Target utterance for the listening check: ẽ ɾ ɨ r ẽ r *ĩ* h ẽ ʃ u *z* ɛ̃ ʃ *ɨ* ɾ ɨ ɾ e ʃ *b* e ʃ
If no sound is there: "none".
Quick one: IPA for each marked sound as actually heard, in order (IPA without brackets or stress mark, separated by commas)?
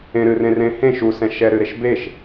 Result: ẽ, s, ɛ, b